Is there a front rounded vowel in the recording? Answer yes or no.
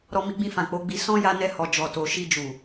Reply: no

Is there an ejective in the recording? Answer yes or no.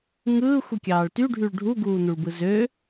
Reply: no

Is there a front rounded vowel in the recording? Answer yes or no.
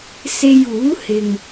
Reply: no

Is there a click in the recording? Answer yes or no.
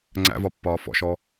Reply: yes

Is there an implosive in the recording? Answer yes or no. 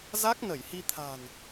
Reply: no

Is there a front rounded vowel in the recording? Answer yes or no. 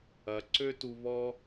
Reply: yes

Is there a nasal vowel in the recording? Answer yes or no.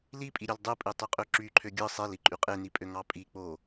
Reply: no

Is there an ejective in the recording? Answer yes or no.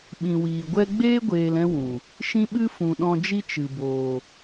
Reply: no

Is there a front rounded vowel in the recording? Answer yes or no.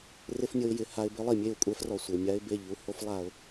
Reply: no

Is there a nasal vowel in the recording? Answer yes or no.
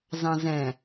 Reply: yes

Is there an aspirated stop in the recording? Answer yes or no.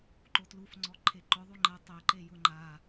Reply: yes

